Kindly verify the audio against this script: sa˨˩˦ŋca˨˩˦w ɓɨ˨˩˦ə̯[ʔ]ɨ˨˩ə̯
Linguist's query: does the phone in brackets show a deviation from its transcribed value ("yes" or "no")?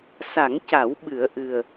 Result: no